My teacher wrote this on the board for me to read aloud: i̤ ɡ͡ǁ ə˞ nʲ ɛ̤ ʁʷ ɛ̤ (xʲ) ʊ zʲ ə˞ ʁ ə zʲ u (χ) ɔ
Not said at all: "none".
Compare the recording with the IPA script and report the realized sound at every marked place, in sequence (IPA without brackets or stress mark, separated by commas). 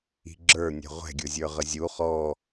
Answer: ɡʲ, χ